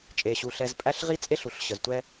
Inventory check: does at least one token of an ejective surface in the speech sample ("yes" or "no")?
yes